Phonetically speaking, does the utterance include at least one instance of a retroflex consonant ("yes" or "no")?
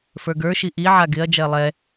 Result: no